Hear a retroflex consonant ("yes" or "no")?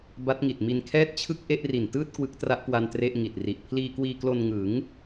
no